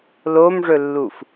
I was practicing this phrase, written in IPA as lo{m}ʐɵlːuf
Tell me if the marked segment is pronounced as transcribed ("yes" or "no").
yes